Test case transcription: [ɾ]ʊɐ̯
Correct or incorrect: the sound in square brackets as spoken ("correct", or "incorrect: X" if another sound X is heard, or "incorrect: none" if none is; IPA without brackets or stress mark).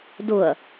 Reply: incorrect: d